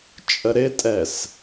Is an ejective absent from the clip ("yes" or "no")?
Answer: no